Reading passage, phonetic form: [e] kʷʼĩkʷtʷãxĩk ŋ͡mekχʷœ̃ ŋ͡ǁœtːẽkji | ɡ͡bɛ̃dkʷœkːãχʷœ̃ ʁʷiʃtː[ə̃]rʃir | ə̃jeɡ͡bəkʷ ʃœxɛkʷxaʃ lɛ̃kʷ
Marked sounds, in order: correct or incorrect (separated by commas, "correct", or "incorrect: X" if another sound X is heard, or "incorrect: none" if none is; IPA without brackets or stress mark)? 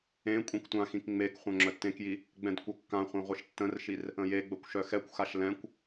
incorrect: ẽ, correct